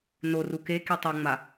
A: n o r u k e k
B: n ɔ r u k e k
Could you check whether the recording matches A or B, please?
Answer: A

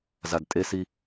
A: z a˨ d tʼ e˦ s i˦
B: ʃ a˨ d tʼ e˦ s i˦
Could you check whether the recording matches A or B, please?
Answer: A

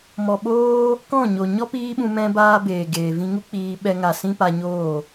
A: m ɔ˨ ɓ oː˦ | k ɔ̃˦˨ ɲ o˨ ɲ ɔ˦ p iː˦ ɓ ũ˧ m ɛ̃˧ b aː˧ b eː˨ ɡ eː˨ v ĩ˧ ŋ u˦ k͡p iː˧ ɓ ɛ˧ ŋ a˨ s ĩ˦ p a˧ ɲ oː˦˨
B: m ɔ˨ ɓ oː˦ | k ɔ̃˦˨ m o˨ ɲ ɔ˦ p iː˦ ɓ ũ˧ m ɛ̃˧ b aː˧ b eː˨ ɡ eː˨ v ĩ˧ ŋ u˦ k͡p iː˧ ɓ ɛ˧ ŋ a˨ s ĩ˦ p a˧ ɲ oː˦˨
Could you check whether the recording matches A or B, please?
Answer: A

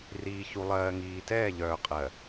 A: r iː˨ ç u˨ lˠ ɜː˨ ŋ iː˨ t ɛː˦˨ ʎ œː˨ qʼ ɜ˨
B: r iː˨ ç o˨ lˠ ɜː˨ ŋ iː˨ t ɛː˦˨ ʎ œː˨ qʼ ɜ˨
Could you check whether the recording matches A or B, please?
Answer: A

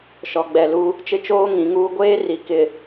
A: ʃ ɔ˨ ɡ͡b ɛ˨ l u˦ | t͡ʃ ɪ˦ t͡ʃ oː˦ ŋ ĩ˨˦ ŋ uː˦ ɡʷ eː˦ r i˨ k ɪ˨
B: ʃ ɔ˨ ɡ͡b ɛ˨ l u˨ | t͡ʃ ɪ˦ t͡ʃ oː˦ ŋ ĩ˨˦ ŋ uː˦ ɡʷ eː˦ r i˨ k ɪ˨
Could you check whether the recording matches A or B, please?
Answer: A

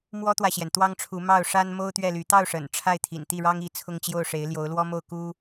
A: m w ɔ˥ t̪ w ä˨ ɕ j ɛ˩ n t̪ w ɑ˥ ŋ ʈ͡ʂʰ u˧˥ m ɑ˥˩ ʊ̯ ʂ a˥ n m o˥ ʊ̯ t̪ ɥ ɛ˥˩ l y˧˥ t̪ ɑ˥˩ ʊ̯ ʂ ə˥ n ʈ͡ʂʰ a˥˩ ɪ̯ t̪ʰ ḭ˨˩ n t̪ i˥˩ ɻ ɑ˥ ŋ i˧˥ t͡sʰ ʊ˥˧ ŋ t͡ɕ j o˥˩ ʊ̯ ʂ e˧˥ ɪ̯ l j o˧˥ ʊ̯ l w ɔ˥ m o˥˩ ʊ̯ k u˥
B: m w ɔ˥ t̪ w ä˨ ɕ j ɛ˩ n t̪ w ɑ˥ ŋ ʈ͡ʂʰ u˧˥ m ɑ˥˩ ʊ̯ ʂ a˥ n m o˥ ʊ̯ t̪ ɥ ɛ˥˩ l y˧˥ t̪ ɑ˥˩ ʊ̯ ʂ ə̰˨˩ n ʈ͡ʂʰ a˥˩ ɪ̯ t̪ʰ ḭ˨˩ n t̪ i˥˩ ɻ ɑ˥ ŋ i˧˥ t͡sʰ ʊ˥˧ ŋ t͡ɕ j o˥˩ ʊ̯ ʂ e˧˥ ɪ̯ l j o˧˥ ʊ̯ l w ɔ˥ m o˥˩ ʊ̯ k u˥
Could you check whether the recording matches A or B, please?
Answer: B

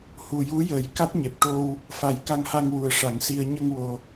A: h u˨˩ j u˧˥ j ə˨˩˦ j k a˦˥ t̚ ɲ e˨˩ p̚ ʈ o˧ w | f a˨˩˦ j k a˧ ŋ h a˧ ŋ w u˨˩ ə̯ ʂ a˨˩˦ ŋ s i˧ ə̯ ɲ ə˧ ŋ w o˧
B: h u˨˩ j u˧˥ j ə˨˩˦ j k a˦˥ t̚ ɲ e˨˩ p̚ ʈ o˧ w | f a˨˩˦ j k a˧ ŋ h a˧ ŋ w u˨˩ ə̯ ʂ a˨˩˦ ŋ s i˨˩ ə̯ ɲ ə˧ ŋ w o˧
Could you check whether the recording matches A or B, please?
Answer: A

